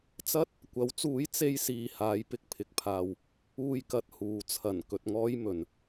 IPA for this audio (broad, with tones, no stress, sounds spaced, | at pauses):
t͡s ɐ˥ t̚ | kʷ ɐ˨˥ w t͡s uː˨˥ j t͡s e˥ j s iː˧ h aː˨˥ j p ɪ˨˥ k̚ pʰ ɪ˧ k̚ pʰ aː˧ w | uː˧ j k ɐ˧ t̚ h uː˨ t͡sʰ ɐ˨˩ n k ɵ˨ t̚ ŋ ɔː˥ j m ɵ˨˧ n